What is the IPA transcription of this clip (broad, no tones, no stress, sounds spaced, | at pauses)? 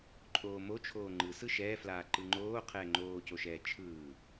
ǃʼ oː m o t͡ʃʰ oː ŋ͡ǃ ɯ s ɯ ʃ ɛː f l aː ǃ ɯ ŋ͡ǃ oː qʰ ɛː ŋ͡ǃ oː c o ʃ ɛː t͡ʃʰ ɯː